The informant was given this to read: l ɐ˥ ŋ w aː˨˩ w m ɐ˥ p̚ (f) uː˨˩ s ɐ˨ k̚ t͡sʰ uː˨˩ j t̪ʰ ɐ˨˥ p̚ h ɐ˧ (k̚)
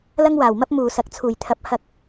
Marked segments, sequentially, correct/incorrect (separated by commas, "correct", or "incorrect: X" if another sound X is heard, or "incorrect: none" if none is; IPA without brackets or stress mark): incorrect: m, correct